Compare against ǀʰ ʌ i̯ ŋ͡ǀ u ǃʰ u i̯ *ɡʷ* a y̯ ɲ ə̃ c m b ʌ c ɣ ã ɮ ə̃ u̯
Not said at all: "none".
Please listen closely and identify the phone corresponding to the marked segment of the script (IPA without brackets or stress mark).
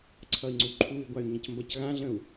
ɡʷ